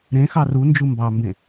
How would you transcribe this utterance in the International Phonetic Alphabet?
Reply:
ɾ ẽ x ɑ r u n d͡ʒ u m b ɑ m b ẽ

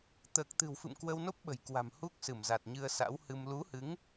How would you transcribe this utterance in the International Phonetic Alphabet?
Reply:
t̪ əː˨˩ k̚ t̪ ɨ̤˨˩ w f ɨ̰˧˨ m k w ə˧ w n o˦˥ p̚ ɓ ə̤˨˩ j k w a̤˨˩ m h u˦˥ k̚ s ɨ˧˩ m z a˨˩ t̚ ɲ ɨ˧ ə̯ s a̰˧˥ w h ɨ˧ m l u˨˦ h ɨ˨˦ ŋ

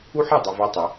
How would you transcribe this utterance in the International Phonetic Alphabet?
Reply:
u˦ ħ ɛ˦˨ dˤ u˨ v a˦ tˤ ɛ˨˦

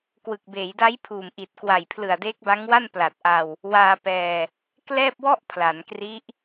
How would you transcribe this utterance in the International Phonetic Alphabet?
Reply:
k w ɯ˨˩ k̚ b eː˩˦ j d a˦˥ j pʰ uː˨˩ m ʔ i˨˩ t̚ k w a˨˩ j pʰ l ɯ˨˩ a̯ d eː˦˥ k̚ b a˦˥ ŋ w a˥˩ n p l a˨˩ t̚ ʔ a˧ w | w aː˧ p ɛː˧ | k l ɛː˥˩ p̚ w ɔ˥˩ ʔ pʰ l a˩˦ n k r i˦˥ ʔ

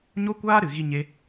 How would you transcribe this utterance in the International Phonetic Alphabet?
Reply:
ɲ o˦ kʷ aː˦ ɾ ɨ˨ ɣ i˧ ɲ e˦

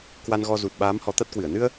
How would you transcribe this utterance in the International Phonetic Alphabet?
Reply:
k w a˧ n ɣ ɔ˧ z u˨˩ t̚ ɓ aː˨˦ m h ɔ˨˦ t̪ a˦˥ t̚ k w ɨ˧˩ ə̯ n ɨ˧ ə̯

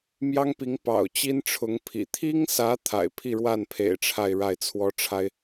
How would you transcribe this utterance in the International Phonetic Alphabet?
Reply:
m j ɑ˥ ŋ p i˧˥ ŋ p ɑ̰˨˩ ʊ̯ t͡ɕ i˥ n ʈ͡ʂʰ ʊ˧˥ ŋ pʰ ḭ˨˩ t̪ʰ i˥ ŋ s ä˧˥ t̪ʰ a̰˨˩ ɪ̯ pʰ i˥˧ ɻ w a˥˩ n pʰ ḛ˨˩ ɪ̯ ʈ͡ʂʰ a˥˧ ɪ̯ ɻ a˥˩ ɪ̯ t͡sʰ w ɔ˥ ʈ͡ʂʰ a˥ ɪ̯

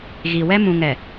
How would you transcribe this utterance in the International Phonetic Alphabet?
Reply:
ɣ i˨ w ɛ˦ m ũ˨ ŋ ɛ˨

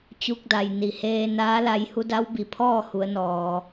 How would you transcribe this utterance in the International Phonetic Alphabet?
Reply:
t͡ɕ u˧ k̚ d a˩ j n i˩ h eː˧ n aː˧˥ l a˧ j h u˧˥ d a˧˥ w b i˩ pʰ ɔː˥˨ h u˩˧ ə̯ n ɔː˩

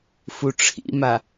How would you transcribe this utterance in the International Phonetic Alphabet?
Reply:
f u ʈ͡ʂʰ ḭ m a

